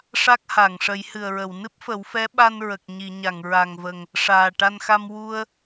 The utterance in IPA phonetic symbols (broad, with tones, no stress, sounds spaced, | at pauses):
ʂ a˦˥ k̚ h a˨˩˨ ŋ ʂ ə˨˩˦ j h ɨ˨˩ ə̯ ɹ ə˨˩˨ w n ɨ˦˥ p̚ f ə˨˩˦ w f ɛ˧˥ ɓ a˧ n ɹ ə˨˩ k̚ ɲ i˨˩˨ ɲ a˨˩˨ ŋ ɹ a˨˩ ŋ v ə˨˩ ŋ | ʂ aː˨˩ ʈ a˧ n x a˧ m w u˧ ə̯